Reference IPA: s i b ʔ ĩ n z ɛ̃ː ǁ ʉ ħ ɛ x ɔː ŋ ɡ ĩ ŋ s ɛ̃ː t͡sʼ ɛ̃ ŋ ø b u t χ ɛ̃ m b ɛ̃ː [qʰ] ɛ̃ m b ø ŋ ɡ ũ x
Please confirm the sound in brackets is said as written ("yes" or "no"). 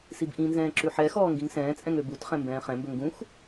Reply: no